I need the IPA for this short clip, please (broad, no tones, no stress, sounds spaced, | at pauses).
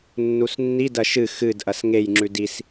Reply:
nː u s nː i d ɐ ʃ ɨ x ɨ d ʔ ɐ s ŋ e j ŋ͡ǁ ʉ d i s